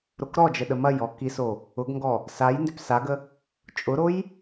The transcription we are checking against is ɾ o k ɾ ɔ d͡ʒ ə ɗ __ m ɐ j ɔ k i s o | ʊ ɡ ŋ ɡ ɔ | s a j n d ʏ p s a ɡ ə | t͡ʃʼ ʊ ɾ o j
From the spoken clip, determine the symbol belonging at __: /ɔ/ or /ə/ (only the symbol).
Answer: ə